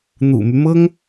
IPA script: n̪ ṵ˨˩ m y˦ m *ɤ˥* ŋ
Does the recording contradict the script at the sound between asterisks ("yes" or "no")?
no